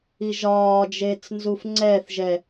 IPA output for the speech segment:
i ʒ ɒː d͡ʒ eː t͡s n z u f ŋ͡ǀ ɛː θ ʒ ɛ

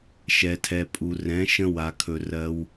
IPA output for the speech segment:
ʃ ɛ˨ tʰ ɛ˨ pʼ u˨ r ɛ̃˨˦ ʃ ə̃˦ w a˨ kʰ ɵ˨ r ɜ˧ w

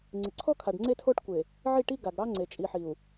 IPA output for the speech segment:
ŋ͡ǀ ɪ˨ ǀʰ ɔ˦ kʰ a˨ ɖ ŋ͡ǀ e˦ tʰ o˦ ʈ kʷ e˨ | ʕ i˦˨ ʈ i˦ ɡ a˨ ɡ ɽ ɑ˦ ŋ͡ǀ e˨ t͡ʃʼ i˨ ħ i˨ u̯

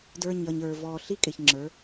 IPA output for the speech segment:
d ə˞˨ ɲ ʌ˨ ɲ ə˞˨ v ɔː˨ ɬ i˦ kʼ ɪ˨ ç ŋ͡ǁ ə˞˨˦

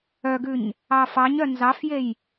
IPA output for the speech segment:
œ ɡ ʉ ɲ | ɑ f ɑ ɲ œ n z ɑ f j e j

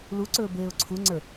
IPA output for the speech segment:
l u ǀ ɵː b eː ʊ̯ ǀʰ u ŋ͡ǀ ə˞

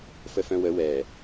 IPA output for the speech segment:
f ə f œ̃ w ə w ɛ

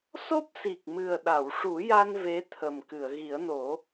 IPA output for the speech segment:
s o˦˥ p̚ s i˨˩ k̚ m ɨ˨˩ ə̯ ɗ a˨˩˨ w ʂ u˨˩˦ j a˧ n v e˧˥ t̪ʰ ə˨˩ m k ɨ˨˩˨ ə̯ ɣ i˨˩˦ ə̯ n o˨˩˦

